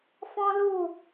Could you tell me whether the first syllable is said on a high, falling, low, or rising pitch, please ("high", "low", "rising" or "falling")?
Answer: high